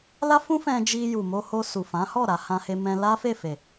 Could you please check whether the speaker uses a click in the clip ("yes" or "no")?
no